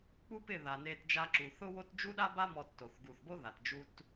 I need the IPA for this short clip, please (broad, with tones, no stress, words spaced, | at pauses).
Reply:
k͡pu˦pɪ˦˨ ða˨ne˧t d͡ʒa˧ǁu˨θʊ˦wo˦t d͡ʒu˦ɗa˦ba˦ mɔ˧tːo˨θ ɡu˨θbo˦ ða˨td͡ʒu˦t